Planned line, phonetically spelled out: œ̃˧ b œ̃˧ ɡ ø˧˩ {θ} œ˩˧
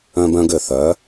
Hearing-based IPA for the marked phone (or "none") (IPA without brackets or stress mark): θ